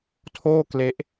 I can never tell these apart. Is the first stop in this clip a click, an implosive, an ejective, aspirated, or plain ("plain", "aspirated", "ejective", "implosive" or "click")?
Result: aspirated